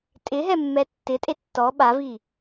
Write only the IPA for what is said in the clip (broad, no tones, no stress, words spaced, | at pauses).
tʼɪɦɛ mːɛtːɪtʼe tːɔ ɓavi